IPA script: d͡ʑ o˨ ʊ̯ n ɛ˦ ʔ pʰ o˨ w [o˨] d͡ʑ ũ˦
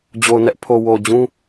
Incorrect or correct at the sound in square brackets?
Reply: correct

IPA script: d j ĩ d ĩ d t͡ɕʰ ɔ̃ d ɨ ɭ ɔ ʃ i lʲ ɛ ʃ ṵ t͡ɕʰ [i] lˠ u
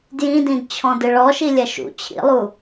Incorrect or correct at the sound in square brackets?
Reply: incorrect: ḭ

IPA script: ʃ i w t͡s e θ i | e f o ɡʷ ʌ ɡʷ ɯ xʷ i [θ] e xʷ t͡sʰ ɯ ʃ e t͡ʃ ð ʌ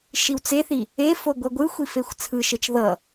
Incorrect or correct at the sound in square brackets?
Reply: incorrect: f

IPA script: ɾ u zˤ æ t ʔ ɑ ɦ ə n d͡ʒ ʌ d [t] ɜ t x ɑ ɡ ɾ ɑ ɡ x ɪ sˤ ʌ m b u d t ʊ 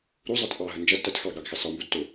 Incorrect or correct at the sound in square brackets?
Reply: correct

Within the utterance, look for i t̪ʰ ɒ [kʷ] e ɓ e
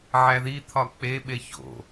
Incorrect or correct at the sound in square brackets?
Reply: incorrect: k͡p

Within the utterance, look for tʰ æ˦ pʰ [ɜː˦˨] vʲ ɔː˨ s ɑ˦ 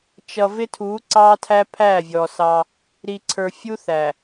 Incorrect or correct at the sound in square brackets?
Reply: incorrect: æː˦˨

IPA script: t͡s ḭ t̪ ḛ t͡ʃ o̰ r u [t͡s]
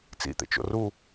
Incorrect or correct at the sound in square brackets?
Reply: incorrect: none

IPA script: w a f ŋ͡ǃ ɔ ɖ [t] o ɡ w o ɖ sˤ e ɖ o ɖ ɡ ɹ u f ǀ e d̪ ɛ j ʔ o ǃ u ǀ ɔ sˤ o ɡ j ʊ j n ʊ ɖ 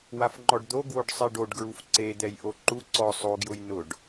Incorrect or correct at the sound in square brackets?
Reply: incorrect: d̪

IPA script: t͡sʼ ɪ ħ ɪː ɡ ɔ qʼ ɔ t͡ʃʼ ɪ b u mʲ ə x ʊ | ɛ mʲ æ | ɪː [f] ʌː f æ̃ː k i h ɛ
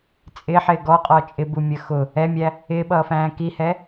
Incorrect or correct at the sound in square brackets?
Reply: incorrect: ɓ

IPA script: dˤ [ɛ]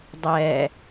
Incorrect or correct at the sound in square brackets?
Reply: correct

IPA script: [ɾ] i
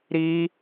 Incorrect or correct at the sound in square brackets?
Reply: correct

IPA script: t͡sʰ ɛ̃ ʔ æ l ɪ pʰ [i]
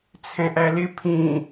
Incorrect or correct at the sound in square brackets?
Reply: incorrect: ĩ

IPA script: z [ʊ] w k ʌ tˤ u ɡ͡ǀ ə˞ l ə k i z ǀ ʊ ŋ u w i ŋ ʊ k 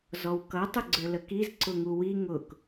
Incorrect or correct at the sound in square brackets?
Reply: incorrect: ɔ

